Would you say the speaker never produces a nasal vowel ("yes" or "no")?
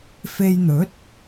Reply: yes